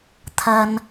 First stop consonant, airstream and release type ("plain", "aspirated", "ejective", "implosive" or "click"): aspirated